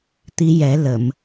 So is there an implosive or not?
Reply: no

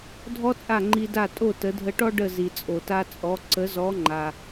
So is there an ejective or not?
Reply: yes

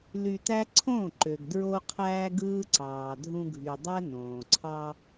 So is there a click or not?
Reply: yes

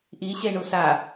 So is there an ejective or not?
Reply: no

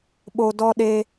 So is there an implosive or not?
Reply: yes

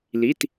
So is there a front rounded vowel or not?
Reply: no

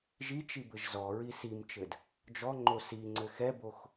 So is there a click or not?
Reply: yes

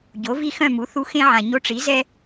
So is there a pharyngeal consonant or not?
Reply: yes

